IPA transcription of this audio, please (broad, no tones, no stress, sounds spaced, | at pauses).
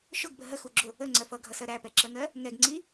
ʃ ʊ ɡ b ə ɦ ə x u ɡ͡ǁ ʊ | ə ŋ͡ǀ ɜ f ʌ ɡʱ ʌ s ɜ ɾ æ p ɛ ǁ ɜ ŋ ɜ | ŋ ɛ ɡ ŋ͡ǀ i